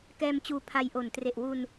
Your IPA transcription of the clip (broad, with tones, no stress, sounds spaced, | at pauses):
k ɛː˧ m t͡ɕ uː˧ pʰ a˧ j ʔ o˨˩ n t r e˨˩ ʔ w u˧ n